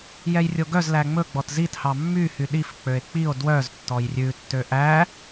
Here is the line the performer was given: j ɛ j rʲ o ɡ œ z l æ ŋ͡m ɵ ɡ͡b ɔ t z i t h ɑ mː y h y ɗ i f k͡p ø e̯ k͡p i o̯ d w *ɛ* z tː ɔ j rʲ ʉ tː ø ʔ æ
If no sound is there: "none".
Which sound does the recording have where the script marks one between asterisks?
œ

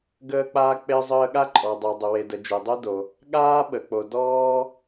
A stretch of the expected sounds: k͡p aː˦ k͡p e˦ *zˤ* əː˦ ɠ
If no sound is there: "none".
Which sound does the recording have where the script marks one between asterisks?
zˤ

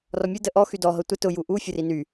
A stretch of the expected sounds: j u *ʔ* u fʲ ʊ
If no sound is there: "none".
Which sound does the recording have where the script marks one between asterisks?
ʔ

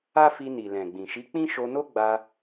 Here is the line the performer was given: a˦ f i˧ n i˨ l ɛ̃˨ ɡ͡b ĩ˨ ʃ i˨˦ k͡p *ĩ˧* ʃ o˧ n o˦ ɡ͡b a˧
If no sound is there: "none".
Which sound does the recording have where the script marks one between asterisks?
ĩ˦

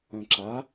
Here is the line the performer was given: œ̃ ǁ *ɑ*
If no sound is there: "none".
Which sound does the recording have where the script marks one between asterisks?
a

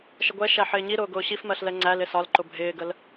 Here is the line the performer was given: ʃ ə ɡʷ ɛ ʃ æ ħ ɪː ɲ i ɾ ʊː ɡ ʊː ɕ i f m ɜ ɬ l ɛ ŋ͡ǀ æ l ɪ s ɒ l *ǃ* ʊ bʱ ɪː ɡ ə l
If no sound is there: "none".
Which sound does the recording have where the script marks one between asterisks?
ǃ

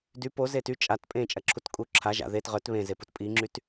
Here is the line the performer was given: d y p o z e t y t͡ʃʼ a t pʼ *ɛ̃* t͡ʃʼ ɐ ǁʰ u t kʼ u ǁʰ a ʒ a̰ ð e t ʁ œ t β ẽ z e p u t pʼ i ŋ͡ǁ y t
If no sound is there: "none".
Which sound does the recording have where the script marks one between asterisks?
ẽ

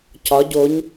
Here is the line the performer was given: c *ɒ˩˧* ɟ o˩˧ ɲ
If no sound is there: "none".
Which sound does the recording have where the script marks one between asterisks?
ɒ˩˧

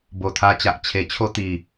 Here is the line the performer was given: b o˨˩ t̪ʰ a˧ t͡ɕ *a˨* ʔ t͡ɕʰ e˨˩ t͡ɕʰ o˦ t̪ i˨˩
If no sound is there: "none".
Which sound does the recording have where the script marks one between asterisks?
a˨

